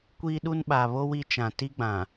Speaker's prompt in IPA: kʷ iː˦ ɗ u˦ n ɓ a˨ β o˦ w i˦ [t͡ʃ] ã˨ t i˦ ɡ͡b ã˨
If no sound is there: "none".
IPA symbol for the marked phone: t͡ʃ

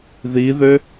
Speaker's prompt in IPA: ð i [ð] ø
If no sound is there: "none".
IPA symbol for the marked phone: ð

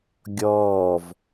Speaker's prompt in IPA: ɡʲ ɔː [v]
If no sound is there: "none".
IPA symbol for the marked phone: v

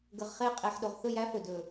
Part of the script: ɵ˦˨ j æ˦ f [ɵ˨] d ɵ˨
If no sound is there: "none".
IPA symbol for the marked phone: ɵ˨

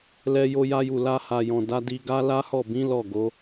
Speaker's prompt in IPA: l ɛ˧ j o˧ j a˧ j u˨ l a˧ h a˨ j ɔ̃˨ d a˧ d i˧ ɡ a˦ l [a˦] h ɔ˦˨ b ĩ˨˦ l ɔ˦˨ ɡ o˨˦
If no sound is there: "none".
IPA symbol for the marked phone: a˦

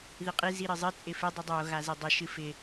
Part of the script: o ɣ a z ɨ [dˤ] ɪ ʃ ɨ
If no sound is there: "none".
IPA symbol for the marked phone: dˤ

